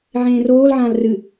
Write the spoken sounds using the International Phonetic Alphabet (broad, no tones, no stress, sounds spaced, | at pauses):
ʕ ẽː r oː l ʕ ãː l r ɨ